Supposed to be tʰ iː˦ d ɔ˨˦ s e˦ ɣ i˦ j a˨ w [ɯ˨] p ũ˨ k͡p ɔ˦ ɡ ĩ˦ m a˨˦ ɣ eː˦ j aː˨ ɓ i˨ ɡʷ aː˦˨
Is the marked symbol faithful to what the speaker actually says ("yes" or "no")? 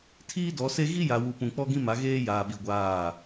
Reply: no